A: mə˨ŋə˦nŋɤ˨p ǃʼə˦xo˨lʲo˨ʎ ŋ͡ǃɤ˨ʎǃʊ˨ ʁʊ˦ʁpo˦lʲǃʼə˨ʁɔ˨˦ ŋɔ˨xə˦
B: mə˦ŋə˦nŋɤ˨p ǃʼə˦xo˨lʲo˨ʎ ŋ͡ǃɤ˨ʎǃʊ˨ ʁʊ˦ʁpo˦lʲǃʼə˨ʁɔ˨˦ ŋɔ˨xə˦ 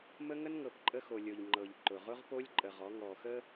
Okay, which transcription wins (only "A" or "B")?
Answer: B